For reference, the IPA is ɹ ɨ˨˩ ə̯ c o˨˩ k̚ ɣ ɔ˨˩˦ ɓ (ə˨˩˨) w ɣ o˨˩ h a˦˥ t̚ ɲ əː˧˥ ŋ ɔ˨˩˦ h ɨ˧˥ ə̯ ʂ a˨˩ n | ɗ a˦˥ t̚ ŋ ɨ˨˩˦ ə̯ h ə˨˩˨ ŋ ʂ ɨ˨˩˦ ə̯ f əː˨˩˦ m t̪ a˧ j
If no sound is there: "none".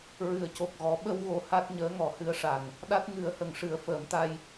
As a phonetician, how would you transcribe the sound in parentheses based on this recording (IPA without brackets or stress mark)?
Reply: ə˧